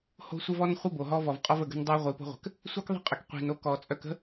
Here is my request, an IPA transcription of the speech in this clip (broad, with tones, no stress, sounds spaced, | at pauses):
h o̤˦ sʷ ə˦ v ɔ˦ n χʷ ə˦ b o˨ ɦ ɔ˦ v ɔ˨ v qʼ ɔ˦ v ə˨ ɡ ə̤˦ n dˤ o˦ ʁʷ i˨˦ p o̤˦ ʁʷ ə̤˨ k | sʷ i˦ k ðˤ ə̤˦ qʼ ə˨ k qʷ i̤˨ n o˦ k ɔ˨ t͡sʼ œ˦ k ə̤˦